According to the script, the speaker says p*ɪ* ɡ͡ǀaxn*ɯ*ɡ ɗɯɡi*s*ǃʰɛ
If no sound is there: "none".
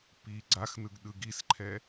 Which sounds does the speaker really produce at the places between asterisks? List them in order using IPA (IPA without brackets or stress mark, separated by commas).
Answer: i, ɯ, s